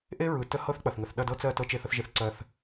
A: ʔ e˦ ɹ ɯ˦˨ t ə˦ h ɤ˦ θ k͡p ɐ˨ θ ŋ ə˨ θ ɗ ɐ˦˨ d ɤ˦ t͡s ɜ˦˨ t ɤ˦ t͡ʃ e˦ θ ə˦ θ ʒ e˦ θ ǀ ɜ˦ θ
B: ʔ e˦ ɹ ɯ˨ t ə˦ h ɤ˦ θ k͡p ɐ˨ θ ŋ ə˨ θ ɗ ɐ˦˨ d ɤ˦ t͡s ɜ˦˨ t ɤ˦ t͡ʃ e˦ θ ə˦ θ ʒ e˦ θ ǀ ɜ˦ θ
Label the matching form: B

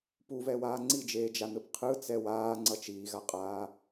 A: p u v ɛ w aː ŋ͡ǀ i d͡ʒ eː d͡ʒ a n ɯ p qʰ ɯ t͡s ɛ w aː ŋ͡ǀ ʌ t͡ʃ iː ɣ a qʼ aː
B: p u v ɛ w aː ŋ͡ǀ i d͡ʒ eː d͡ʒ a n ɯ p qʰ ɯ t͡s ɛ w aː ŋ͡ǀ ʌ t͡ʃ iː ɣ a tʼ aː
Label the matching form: A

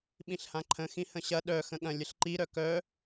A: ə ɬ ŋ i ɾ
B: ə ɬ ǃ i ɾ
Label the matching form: B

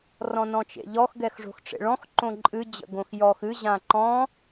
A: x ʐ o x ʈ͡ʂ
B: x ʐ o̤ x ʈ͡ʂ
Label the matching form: B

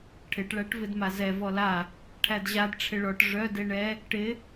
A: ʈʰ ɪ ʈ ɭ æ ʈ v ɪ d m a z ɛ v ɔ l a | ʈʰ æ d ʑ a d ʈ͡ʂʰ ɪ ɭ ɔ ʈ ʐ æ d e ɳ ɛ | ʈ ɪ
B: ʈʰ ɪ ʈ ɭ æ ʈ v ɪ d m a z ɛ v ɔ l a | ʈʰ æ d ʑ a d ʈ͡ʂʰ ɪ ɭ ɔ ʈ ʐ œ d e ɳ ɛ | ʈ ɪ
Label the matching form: B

